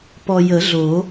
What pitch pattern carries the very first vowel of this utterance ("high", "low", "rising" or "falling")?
low